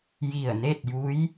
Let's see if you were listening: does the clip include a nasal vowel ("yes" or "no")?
no